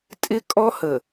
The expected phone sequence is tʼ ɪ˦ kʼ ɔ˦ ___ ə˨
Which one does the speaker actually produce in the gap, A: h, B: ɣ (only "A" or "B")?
A